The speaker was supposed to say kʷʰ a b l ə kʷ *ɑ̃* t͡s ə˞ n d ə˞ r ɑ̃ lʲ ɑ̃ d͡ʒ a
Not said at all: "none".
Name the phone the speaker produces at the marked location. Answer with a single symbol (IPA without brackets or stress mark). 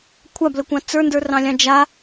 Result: ɑ̃